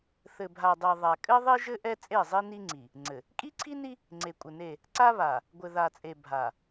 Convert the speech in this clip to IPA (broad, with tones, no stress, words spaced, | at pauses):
θɘ˨bʱa˨dˤi˨ ðˤa˨ kʼɘ˦ðˤi˦ʒɘ˦ ʔɛ˦t͡sʼe˦˨zˤi˦ ni˦ŋ͡ǀi˨ | ŋ͡ǀɘ˨ | kʼi˦ǀʰi˦ni˦ | ŋ͡ǀe˨kʷʼɘ˨ne˦˨ | ǀa˦βa˨ | ɡʷɘ˨ða˨t͡sʼe˨ bʱa˨